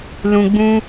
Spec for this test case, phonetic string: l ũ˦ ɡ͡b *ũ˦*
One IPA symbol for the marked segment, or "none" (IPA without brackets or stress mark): ũ˦